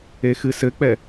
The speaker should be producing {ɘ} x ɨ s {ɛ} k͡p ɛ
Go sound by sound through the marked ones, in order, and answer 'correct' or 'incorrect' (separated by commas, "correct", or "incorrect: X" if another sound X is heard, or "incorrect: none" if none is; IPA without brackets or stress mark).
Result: incorrect: e, incorrect: ɘ